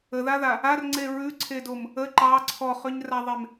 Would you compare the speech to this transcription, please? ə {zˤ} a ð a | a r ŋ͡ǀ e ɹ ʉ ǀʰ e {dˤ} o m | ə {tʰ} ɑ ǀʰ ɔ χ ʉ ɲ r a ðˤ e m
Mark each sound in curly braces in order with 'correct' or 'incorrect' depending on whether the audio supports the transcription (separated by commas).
incorrect, incorrect, incorrect